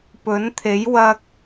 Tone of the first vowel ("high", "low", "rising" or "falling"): rising